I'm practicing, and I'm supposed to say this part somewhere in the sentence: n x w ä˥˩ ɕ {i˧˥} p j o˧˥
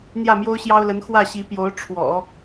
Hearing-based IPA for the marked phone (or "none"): i˧˥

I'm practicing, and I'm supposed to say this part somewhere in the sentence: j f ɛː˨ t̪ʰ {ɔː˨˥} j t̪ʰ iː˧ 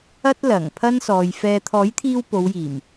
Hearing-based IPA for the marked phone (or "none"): ɔː˨˥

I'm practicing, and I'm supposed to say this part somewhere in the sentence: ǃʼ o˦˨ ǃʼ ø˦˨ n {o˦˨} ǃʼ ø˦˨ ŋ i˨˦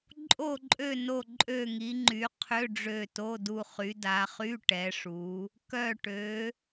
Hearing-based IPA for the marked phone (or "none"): o˦˨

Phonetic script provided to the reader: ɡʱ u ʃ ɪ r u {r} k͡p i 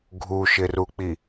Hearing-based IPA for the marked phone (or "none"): none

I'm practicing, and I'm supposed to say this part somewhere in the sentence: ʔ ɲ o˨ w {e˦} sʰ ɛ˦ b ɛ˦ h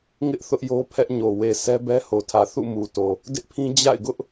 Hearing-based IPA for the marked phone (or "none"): e˨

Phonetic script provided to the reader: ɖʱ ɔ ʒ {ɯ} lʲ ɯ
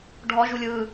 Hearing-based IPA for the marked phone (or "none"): u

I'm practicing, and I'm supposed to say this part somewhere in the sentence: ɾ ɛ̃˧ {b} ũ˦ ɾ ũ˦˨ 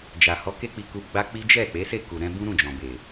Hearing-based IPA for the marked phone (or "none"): b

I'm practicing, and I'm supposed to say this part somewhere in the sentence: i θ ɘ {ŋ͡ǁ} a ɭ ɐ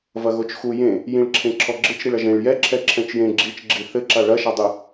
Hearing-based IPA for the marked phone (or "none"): ǁ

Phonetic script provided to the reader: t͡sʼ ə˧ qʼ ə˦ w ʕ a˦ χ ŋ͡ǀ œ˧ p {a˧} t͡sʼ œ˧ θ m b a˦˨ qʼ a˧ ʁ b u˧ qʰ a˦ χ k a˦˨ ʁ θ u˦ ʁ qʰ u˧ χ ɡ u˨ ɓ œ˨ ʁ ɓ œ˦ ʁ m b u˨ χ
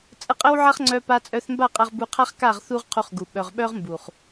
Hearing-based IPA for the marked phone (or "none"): a˧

